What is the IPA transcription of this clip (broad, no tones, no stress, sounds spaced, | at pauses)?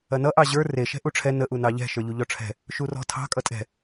ɐ n ʌ ʔ ɑ ʑ ə˞ r e ʃ ɛ̤ ʔ u ʈ͡ʂʰ ɛ n ə ʔ u n ɑ ʎ ɛ̤ ʃ ə˞ ʎ u ʎ ɔ ʈ͡ʂʰ ɛ̤ | ʃ u r ɔ̤ tʰ ɑ̤ kʼ ʌ tʼ ɛ̤